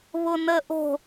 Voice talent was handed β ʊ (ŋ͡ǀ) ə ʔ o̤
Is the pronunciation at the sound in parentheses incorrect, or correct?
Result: incorrect: n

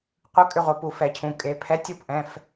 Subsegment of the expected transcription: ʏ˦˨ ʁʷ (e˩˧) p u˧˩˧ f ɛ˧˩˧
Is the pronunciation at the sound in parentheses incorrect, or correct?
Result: correct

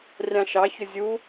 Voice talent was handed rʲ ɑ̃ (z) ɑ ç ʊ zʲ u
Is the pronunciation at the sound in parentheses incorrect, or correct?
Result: incorrect: ʃ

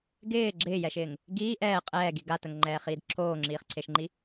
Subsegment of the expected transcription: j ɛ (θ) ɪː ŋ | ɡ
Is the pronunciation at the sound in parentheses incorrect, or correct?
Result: incorrect: ʃ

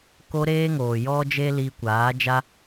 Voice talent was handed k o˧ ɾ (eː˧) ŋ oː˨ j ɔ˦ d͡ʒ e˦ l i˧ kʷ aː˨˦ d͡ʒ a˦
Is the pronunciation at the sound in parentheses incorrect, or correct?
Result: correct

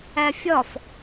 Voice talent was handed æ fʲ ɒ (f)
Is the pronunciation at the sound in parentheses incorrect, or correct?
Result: correct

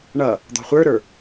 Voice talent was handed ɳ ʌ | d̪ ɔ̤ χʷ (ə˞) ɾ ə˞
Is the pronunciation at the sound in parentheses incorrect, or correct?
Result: correct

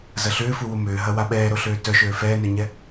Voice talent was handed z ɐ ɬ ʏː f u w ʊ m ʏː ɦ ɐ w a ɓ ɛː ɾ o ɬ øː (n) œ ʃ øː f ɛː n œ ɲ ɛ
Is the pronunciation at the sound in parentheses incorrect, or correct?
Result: incorrect: t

